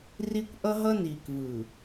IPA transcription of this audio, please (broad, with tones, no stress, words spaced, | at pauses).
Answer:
ri˦kʷʔʌ˦ ɦʌ˦niː˨kvɯː˨